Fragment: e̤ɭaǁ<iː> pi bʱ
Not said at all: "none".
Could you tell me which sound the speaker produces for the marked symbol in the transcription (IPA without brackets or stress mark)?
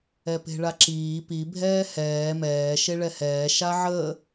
iː